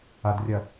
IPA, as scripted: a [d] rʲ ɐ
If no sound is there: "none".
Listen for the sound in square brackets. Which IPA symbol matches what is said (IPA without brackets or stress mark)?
d